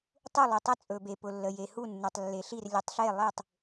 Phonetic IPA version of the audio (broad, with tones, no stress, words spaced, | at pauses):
tˤu˦˨lˠɵ˨ tˤə˦˨t͡sʼɵ˨be˨pʊ˨ lːə˨je˨ hu˦˨nːu˨tˤlːe˨ɬi˦˨r lʲə˨tˤɬe˦˨lˠe˦˨tˤ